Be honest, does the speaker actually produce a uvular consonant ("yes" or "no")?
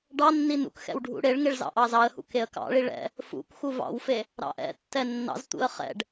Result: yes